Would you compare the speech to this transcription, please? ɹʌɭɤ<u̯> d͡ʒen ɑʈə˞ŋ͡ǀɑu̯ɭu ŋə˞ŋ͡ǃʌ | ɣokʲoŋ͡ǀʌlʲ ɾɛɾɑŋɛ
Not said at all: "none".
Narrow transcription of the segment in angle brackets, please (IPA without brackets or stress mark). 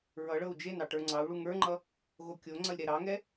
u̯